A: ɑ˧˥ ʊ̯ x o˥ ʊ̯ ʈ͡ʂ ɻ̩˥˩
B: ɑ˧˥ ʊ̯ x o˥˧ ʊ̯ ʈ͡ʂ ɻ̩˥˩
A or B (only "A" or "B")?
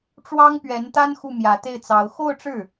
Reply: B